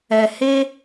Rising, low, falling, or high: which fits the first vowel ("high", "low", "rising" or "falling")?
low